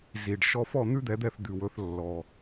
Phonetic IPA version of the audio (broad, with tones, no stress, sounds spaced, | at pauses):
z i˩ ɖ ʃ ɔ˧ f ɔ˥˩ n̪ ʉ˥ d̪ ɛ˩˥ d̪ ɛ˥˩ θ d̪ ʉ˩ w ɵ˩˥ θ lː ɔ˩